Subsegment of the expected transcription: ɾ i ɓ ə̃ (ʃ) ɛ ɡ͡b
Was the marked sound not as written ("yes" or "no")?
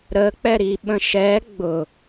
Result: no